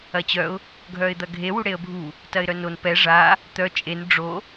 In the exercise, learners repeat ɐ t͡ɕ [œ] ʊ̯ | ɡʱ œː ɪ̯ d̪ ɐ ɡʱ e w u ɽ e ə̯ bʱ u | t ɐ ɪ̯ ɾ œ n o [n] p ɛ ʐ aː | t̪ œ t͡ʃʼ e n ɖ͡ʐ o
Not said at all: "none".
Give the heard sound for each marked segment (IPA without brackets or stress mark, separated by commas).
œ, n